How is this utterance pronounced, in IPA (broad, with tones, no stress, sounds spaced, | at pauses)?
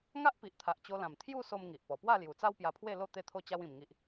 ŋ a˦ ʔ p i˨ ʔ t̪ʰ a˨ ʔ t͡ɕ o˧ l ã˨˩ m t̪ʰ j u˥˧ s o˧ m ŋ i˨ ʔ p ɔ˨˩ p w a˥˧ l j u˨˩ t͡s a˦ w p j a˧ pʰ w e˥˧ l o˥˧ t̪ e˥˧ t̪ʰ o˥˧ t͡ɕ a˦ w ĩ˧ m ŋ i˦ ʔ